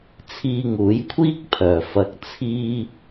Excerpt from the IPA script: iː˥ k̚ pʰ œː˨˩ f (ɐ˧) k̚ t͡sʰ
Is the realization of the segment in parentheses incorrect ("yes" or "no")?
no